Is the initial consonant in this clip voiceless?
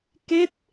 yes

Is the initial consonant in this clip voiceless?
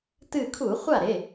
yes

